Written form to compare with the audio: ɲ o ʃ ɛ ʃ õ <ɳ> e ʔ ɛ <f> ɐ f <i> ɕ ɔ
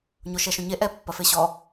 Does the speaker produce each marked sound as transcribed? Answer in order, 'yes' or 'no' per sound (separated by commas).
no, no, no